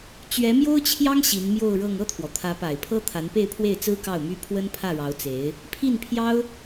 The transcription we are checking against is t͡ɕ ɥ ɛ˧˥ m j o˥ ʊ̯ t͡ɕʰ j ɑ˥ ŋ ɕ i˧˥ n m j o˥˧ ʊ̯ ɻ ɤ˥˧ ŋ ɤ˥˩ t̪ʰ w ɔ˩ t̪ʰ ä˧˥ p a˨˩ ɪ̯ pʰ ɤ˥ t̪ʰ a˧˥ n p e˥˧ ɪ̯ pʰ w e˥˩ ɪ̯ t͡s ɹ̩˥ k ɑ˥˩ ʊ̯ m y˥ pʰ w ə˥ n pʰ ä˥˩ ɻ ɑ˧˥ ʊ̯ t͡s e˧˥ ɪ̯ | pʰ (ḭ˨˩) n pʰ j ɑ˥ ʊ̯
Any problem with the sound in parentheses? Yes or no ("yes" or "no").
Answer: yes